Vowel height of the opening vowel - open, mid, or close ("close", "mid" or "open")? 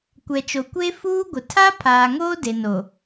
mid